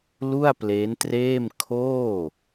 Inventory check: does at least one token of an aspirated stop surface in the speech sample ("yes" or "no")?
yes